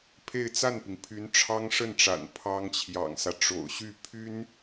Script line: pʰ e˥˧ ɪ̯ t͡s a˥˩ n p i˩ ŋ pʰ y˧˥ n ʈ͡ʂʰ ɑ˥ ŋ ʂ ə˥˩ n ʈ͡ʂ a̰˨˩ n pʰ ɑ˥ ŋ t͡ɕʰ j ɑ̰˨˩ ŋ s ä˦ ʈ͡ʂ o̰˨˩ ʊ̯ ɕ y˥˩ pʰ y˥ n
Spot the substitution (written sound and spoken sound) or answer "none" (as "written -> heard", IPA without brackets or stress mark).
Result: none